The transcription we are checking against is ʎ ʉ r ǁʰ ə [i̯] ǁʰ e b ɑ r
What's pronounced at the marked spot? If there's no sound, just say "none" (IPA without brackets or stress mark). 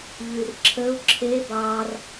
u̯